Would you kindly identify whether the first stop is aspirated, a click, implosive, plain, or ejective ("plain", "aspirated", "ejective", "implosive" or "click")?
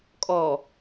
ejective